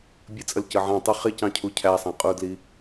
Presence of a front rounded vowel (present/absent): absent